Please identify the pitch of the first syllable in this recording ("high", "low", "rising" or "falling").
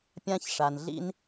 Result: high